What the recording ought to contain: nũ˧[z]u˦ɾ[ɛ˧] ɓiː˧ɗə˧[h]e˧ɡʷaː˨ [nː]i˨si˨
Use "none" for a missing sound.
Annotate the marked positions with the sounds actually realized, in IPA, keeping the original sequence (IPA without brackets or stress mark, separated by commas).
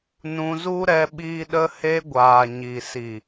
z, ɛ˧, h, ɲ